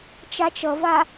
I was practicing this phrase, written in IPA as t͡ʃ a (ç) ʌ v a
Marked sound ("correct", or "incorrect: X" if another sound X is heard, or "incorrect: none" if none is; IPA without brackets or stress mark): incorrect: t͡ʃ